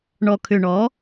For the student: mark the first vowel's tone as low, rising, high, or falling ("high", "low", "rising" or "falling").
low